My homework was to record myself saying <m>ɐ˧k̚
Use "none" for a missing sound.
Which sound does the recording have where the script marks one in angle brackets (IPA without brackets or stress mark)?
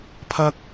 pʰ